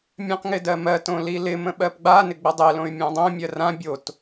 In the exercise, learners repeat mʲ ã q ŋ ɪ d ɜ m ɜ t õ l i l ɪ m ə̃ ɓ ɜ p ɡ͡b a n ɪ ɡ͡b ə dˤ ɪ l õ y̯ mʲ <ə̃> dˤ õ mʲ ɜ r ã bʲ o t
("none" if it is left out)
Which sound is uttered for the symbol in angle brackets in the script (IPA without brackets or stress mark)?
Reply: ã